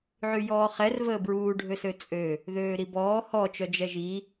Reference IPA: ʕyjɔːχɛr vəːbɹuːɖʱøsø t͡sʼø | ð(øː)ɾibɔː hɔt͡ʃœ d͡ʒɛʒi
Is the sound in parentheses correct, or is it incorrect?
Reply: correct